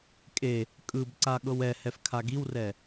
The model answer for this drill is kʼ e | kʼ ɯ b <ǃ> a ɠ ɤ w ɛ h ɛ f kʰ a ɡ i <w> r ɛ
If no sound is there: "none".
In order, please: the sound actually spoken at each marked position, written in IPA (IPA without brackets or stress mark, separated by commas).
ǀ, w